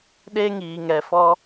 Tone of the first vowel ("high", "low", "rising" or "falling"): high